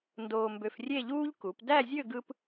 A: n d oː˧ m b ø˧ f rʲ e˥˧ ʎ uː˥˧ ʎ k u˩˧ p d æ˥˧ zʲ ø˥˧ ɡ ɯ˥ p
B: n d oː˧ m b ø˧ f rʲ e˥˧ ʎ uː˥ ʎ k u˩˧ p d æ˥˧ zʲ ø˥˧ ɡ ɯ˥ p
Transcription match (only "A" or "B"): B